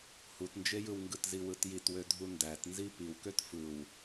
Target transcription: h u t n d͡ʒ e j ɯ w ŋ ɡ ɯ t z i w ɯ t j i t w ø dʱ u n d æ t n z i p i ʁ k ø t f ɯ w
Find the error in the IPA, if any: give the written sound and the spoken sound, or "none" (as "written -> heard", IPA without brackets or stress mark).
ʁ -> w